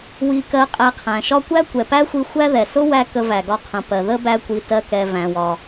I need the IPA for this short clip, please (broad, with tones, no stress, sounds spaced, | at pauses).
w i˧ k ɜ˧ qʼ æ˧ qʰ æ̃˩ ʃ ɒ˥ kʷ æ˥ kʷ ɛ˩ p æ˥ xʷ i˧ xʷ æ˥ ð ɛ˩ s ʊ˥ w æ˥ k ə˧ v æ˩ ɡ ɒ˧ qʰ ə̃˩ p ɜ˩ ð ə˥ b æ˥ kʷ i˧ t ɜ˧ k ɛ˩ v æ̃˩ w ɒ˩